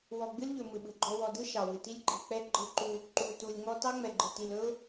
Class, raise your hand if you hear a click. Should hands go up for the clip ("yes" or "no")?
yes